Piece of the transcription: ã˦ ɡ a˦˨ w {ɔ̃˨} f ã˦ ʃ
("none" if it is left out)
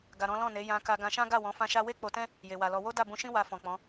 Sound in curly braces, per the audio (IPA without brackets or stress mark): ɔ̃˨˦